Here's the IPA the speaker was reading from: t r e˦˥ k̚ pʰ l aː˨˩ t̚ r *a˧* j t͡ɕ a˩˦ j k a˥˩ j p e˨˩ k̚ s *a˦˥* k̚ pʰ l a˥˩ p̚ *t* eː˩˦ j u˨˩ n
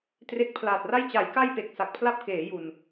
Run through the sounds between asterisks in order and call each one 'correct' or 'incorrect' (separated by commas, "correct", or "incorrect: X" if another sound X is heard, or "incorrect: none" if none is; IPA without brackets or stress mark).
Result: incorrect: a˥˩, incorrect: a˨˩, incorrect: k